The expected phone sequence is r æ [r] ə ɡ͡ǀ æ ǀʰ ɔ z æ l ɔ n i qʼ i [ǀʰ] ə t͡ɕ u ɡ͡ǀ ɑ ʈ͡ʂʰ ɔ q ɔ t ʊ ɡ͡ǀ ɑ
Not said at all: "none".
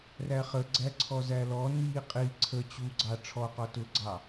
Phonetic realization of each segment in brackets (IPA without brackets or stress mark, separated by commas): χ, ǀʰ